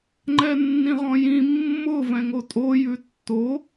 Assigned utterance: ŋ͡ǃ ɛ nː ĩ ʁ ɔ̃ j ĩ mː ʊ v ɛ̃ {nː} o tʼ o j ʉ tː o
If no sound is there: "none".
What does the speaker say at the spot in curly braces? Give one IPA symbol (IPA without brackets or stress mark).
ŋ